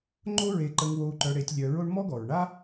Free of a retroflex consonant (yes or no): no